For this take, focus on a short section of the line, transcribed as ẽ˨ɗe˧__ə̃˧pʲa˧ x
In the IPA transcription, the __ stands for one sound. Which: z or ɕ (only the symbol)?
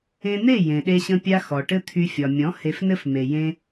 ɕ